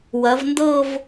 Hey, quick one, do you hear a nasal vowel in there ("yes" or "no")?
no